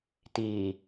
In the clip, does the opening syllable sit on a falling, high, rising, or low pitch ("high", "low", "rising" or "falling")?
low